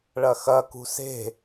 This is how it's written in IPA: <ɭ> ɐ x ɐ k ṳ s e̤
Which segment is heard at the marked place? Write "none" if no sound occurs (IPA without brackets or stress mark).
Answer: ɭ